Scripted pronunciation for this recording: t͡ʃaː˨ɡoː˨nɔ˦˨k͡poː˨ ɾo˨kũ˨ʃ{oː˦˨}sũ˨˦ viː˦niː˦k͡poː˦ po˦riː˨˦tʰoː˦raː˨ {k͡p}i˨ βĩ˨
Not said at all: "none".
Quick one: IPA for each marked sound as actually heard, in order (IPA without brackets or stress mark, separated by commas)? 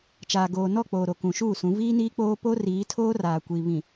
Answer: uː˦˨, kʷ